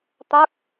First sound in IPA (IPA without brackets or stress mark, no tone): t̪